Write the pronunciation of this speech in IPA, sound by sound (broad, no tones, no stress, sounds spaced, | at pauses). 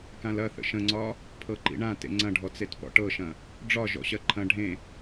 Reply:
k ã l ɐ θ ə̰ ʃ ə̃ ŋ͡ǀ ɒ | pʰ ɤ ǃ ḭ ɳ ã t ḛ ŋ͡ǀ ɐ̃ ɖʱ ɔ t͡s e t p ɔ̰ ʈ ɤ ʃ ɐ̃ | ɖ͡ʐ ɒ ʒ ɔ̰ ɕ ɜ ǃʰ ɐ̃ ɖʱ ẽ